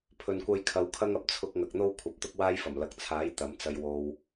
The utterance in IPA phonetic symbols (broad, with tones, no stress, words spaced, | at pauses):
pʰɵ˨nkʷɐ˧jkʰɐ˨˧w kʰɐ˥ŋɐ˨˥p̚ t͡sʰʊ˧k̚ ŋɐ˨k̚n̪o˥w kʷʰɐ˨˥p̚t̪ʊ˥k̚waː˥jfɐ˨˩m lɐ˨k̚t͡sʰaː˨˥j t̪ɐ˨˥mt͡sɐ˧j wo˧w